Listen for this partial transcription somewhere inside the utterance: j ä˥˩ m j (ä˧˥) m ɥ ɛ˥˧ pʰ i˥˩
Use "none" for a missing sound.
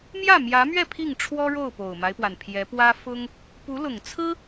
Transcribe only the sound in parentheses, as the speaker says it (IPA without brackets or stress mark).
ä˧˥